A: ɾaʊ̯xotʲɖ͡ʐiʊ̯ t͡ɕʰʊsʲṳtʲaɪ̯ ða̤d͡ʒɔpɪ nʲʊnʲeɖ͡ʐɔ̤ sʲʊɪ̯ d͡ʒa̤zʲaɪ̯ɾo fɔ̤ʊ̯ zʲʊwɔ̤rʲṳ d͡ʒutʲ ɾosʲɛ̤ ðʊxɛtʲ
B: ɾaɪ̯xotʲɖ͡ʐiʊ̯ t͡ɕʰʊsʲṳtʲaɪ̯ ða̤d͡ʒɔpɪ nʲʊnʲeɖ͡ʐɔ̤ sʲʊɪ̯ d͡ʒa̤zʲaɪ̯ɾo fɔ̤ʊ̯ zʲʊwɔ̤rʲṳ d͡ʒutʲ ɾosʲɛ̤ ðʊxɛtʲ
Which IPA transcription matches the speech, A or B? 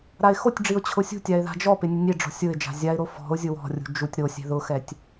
B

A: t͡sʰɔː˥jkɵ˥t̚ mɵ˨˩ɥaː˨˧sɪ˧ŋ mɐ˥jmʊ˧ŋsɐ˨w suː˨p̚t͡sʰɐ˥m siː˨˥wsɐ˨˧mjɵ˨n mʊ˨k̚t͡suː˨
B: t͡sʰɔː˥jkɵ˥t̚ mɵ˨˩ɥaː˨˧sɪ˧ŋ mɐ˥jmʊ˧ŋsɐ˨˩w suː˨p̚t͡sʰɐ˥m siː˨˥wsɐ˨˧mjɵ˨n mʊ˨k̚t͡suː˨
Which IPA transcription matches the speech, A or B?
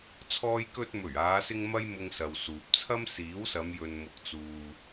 A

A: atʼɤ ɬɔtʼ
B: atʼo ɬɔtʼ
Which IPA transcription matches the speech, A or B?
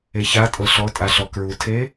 A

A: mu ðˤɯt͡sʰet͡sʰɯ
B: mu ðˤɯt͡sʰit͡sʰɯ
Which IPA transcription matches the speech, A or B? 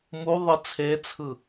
A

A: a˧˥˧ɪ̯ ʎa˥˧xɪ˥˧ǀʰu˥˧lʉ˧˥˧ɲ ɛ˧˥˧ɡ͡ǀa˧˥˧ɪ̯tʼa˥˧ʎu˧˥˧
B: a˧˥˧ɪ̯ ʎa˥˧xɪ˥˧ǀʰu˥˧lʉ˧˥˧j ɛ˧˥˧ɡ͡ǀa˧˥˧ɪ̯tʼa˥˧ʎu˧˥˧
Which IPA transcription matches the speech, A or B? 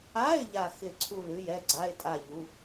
B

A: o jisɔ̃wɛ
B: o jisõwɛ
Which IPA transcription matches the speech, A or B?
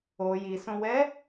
B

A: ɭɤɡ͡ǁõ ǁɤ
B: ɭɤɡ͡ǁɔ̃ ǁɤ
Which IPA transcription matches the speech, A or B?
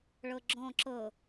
B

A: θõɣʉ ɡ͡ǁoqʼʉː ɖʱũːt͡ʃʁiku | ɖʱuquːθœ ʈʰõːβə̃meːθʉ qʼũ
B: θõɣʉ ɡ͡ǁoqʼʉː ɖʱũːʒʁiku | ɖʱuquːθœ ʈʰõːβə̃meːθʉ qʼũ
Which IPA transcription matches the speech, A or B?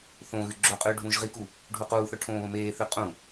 B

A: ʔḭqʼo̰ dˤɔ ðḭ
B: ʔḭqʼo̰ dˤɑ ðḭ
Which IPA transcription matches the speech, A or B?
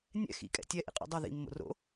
B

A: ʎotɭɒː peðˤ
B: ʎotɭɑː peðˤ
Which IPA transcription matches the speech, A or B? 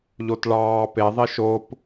B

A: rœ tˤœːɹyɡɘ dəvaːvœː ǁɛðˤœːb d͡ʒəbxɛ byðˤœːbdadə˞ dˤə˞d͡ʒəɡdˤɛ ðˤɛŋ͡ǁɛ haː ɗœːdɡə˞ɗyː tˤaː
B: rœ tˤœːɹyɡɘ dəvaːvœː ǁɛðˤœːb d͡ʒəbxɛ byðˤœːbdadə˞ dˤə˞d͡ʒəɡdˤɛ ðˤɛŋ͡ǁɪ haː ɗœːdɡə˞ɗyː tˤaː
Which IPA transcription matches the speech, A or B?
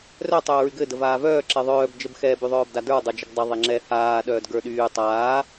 A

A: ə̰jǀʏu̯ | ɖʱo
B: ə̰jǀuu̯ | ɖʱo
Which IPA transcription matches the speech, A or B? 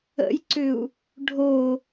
A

